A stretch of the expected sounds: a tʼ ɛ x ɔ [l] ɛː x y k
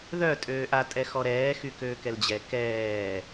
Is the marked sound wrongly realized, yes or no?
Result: yes